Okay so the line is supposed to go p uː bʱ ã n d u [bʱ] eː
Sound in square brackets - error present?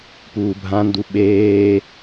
yes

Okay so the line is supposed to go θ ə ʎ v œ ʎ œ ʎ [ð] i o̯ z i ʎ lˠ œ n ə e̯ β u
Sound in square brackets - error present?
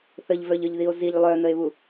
no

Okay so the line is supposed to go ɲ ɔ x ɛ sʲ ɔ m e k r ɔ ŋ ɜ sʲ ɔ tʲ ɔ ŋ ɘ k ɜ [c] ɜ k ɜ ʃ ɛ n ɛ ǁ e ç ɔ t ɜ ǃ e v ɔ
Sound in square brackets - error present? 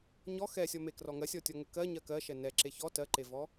yes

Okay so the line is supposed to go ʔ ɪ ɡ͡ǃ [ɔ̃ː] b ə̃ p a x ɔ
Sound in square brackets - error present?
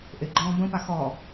no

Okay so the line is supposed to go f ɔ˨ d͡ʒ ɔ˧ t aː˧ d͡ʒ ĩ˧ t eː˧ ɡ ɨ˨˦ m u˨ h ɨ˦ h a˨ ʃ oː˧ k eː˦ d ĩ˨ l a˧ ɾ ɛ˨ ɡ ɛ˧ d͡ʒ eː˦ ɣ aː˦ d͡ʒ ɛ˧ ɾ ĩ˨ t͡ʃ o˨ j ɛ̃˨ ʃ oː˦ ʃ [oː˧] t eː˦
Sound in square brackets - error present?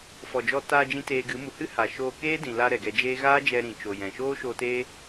no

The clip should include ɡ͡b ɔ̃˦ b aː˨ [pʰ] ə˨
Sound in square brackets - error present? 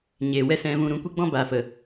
yes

